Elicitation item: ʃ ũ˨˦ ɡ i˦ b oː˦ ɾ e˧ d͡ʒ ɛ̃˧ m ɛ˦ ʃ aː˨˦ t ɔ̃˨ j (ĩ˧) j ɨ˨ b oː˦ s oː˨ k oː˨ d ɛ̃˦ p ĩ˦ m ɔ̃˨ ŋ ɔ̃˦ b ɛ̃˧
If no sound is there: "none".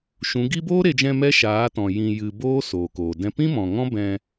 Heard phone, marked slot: ĩ˨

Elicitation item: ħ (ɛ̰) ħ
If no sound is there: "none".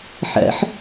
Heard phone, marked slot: ɛ̰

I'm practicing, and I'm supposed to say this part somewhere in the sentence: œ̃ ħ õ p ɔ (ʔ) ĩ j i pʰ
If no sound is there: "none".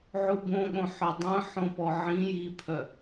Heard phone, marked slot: ʕ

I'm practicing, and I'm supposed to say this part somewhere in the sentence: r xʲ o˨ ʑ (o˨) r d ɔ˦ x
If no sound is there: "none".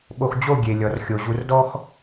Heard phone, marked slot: u˨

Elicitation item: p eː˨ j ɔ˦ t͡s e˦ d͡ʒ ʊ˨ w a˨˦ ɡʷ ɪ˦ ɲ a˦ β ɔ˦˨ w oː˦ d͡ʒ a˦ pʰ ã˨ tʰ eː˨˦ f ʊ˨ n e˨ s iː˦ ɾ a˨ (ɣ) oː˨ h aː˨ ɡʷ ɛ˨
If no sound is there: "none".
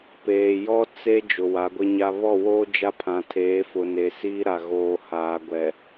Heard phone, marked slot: ɣ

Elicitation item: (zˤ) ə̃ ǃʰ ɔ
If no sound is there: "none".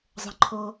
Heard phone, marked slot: zˤ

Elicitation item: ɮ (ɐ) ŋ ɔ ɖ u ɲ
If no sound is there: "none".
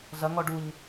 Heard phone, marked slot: ɐ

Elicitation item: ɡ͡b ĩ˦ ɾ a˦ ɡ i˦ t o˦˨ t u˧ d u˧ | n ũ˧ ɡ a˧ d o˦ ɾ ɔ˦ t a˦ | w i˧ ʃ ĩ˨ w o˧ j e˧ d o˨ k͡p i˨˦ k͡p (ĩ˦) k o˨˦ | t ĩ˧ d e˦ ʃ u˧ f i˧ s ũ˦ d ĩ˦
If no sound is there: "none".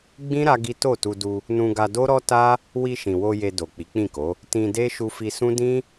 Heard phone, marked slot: ĩ˦˨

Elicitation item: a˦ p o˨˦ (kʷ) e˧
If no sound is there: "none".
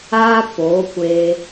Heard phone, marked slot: kʷ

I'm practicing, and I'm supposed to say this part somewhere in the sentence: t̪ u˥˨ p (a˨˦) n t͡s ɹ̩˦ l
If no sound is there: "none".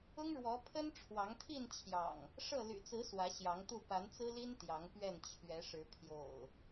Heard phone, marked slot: a˨˦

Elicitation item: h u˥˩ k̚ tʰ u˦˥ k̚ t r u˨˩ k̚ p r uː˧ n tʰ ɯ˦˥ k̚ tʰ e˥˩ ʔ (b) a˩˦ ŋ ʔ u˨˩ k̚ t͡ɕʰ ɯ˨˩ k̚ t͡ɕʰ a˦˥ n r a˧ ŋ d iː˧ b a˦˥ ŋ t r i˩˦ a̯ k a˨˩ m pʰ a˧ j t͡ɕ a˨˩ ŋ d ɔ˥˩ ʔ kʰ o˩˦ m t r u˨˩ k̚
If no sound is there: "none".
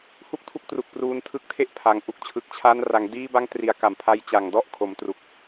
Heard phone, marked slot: pʰ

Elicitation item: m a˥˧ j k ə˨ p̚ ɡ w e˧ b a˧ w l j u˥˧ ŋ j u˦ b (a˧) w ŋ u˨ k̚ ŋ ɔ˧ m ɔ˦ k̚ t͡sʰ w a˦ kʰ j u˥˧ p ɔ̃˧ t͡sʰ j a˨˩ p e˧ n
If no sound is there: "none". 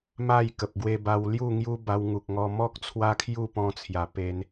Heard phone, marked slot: a˧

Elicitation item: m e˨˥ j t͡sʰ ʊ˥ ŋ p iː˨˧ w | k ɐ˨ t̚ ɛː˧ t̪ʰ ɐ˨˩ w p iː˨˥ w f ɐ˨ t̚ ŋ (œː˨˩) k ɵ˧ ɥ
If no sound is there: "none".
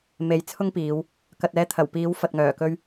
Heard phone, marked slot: œː˨˩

